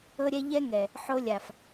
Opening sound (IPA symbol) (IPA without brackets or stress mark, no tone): ɤ